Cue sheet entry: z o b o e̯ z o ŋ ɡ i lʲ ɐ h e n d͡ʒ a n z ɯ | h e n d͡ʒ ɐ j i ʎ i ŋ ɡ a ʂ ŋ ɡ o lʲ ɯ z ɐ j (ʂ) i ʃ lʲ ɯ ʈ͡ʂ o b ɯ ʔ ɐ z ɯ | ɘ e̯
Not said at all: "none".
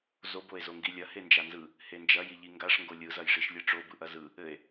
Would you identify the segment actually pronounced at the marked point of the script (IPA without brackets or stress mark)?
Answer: ʂ